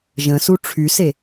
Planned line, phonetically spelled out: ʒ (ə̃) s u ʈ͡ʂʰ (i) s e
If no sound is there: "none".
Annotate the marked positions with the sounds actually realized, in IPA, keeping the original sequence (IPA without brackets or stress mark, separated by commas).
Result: ə̃, y